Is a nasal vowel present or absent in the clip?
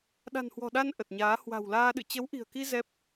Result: absent